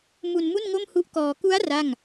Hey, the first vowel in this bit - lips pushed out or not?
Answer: yes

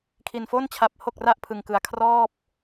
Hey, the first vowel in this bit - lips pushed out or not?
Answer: no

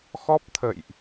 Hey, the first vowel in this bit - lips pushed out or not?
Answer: yes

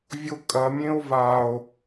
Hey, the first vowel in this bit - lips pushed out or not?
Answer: yes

